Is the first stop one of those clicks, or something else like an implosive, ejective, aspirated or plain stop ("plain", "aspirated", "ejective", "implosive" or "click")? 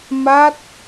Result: plain